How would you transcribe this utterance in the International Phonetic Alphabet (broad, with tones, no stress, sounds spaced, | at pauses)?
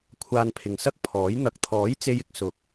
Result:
kʷʰ aː˧ n pʰ ɪ˨ ŋ s ɐ˥ k̚ pʰ ɔː˨˥ j n̪ ɐ˨ k̚ t̪ʰ ɔː˨˥ j t͡s e˥ j ɪ˧ k̚ s ʊ˨˥ k̚